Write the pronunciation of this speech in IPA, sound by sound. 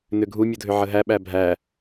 n ʏ ɡʱ u mʲ u dʱ ʏ ʕ ə ɦ æ ɓ æ bʱ æ

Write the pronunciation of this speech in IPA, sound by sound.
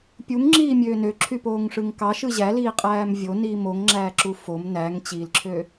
pʲ u ŋ ŋ͡ǁ iː mʲ øː n ø ǁʰ y p oː ŋ ʂ ɯ ŋ k ɑ ʃ ɯ ʑ æ l iː qʼ æː m vʲ o n iː m o ŋ ŋ͡ǁ æː ǁ u f o m n æ ŋ t͡ɕ i l ǁʰ ø

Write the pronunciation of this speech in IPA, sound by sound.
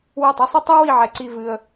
w ɐ˧˩ tˤ ɨ˧ sˤ i˧ tˤ ɐ˥ w i˥˧ ʕ ɛ˧ ǀ i˥˧ v ɨ˧ ə̯

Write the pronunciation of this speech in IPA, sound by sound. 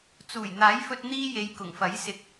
t͡s uː˨˩ j n̪ aː˨˥ j f ɵ˧ t̚ n̪ iː˧ j e˨ j k ʊ˨˩ ŋ f ɐ˨˥ j s ɪ˧ k̚

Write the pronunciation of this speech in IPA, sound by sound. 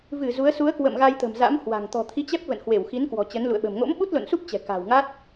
v ɨ˧˩ z u˨˦ ə̯ s u˨˦ ə̯ k w ə̰˧˨ m ɣ a˧ j t̪ ə̤˨˩ m z a̰˧˥ m h w a̤˨˩ ŋ t̪ ɔ̤˨˩ t̪ʰ i˨˦ t͡ɕ ɛ˦˥ p̚ v ə̰˧˨ n h w e˧˩ w x i˨˦ n k w ɔ̤˨˩ t͡ɕ ə˨˦ n l ṵ˧˨ ə̯ ɓ ə̤˨˩ m ŋ o̰˧˥ m ɓ u˦˥ t̚ l o̰˧˨ n s u˦˥ p̚ t͡ɕ ɛ̤˨˩ k a̤ː˨˩ w ŋ a˦˥ t̚

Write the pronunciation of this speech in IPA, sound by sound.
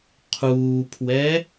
qʰ uː pʰ w ɛ

